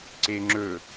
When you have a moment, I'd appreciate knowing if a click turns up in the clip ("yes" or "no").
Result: yes